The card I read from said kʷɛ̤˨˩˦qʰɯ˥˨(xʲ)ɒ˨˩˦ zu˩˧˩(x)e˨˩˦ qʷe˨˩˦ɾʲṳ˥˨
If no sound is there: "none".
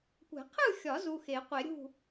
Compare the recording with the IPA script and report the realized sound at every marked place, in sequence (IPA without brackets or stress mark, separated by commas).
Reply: xʲ, x